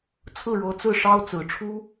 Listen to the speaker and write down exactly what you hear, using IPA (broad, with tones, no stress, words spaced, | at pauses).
t͡sʰɹ̩˥˩ ɻɤ˧˥t͡sɹ̩˥˩ ʂɑ˥ʊ̯t͡sɹ̩˨˩ ʈ͡ʂʰu˥